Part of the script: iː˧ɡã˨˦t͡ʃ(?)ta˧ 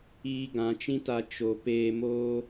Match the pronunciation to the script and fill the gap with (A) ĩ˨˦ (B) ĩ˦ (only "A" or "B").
B